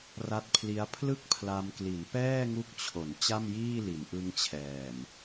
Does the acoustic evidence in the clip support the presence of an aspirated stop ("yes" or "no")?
yes